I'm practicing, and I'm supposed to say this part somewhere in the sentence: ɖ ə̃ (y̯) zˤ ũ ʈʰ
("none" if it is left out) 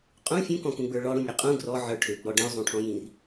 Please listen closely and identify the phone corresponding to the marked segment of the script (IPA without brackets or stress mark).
y̯